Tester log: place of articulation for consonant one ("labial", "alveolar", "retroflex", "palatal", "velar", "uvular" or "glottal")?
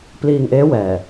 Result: labial